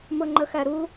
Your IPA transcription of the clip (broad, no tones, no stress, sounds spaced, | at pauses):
m ʊ ŋ͡ǃ ə x æ ɾ u